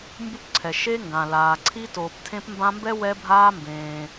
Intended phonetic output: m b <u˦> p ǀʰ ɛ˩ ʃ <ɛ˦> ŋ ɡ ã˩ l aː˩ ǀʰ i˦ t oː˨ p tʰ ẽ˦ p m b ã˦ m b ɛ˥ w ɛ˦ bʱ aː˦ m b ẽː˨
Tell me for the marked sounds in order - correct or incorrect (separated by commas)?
correct, incorrect